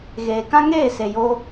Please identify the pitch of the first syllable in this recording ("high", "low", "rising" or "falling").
low